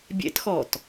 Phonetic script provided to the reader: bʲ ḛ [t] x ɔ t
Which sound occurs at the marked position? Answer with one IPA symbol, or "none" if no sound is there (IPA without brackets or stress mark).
t